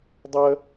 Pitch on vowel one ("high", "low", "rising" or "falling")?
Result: high